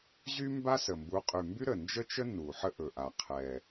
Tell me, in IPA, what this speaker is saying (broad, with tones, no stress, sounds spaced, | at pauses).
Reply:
ʑ y˥ m b a˥ s ə˨˩ m b u˨˦ qʼ y˨˩ m b y˥ ɾ ə˨˩ n d͡ʒ ə˥ t͡ʃ ə˥ n u˨˩ ħ ə˥ ʔ ɵ˨˩ ʔ a˨˩ qʰ ɛ˨˩